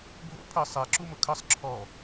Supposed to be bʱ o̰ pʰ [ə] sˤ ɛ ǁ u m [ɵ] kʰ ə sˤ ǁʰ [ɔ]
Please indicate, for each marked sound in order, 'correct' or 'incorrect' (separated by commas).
correct, incorrect, correct